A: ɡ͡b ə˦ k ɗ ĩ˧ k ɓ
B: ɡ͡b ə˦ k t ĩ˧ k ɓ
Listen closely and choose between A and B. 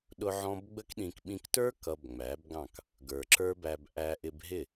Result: A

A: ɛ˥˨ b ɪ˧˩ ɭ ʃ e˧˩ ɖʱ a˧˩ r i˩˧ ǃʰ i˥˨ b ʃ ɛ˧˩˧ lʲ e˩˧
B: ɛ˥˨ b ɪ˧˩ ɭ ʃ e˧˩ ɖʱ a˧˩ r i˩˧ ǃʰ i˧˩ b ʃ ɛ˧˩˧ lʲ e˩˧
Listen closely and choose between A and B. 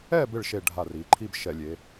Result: A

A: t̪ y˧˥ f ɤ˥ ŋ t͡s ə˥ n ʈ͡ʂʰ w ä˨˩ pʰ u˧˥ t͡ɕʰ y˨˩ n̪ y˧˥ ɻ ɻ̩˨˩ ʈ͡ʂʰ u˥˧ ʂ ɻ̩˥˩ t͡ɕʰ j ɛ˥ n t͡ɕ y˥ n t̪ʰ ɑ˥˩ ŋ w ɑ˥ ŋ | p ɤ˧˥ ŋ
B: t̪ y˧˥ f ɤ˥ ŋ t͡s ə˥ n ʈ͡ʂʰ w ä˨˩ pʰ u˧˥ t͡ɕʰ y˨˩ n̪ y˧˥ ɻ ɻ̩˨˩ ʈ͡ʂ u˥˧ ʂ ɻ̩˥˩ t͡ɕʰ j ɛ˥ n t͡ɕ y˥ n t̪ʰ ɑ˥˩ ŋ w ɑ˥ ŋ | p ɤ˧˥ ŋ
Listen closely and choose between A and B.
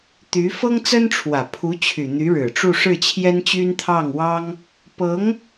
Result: B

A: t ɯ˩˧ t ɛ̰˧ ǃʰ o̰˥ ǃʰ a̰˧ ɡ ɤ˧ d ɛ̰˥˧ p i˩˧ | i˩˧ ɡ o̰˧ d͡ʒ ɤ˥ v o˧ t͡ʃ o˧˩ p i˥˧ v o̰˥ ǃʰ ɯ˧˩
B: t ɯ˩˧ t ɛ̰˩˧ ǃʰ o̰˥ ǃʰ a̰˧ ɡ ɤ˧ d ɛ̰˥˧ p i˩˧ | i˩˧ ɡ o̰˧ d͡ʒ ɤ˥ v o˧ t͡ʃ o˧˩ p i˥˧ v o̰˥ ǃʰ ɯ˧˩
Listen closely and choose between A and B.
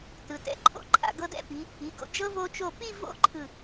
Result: A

